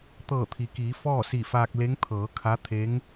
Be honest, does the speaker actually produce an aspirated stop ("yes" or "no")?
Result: yes